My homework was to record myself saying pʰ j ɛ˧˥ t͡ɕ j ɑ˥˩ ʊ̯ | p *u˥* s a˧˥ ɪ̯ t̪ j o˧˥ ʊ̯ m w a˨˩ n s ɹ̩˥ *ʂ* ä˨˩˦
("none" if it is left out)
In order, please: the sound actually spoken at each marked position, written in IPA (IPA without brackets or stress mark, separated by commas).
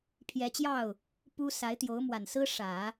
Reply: u˥, ʂ